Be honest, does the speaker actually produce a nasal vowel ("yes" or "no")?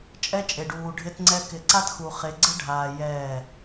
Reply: no